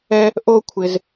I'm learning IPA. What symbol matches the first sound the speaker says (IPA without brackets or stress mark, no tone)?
ɛ